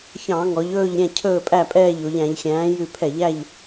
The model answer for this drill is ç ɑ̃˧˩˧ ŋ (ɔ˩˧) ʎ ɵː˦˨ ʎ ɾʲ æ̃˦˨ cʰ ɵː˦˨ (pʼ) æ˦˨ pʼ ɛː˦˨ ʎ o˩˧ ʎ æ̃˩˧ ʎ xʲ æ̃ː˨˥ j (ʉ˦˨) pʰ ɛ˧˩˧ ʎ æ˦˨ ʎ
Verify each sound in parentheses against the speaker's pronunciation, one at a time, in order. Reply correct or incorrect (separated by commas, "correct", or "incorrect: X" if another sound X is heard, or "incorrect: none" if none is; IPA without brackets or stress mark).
correct, correct, correct